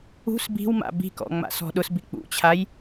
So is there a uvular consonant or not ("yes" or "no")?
no